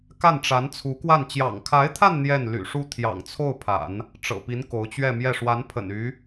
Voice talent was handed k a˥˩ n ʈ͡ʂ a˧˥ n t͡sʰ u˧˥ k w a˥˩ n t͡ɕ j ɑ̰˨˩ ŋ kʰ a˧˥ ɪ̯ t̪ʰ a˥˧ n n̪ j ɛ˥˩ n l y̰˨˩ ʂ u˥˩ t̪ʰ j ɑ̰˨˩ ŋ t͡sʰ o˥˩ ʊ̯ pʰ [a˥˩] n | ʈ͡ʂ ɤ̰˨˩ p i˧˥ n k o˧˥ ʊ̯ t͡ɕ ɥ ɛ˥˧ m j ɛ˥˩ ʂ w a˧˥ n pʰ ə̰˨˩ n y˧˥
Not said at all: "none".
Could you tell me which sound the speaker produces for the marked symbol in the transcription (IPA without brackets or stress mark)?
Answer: a̰˨˩˦